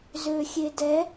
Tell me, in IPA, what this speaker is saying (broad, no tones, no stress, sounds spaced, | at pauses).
z ø xʲ e d ɛ